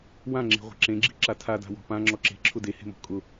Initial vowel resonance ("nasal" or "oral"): nasal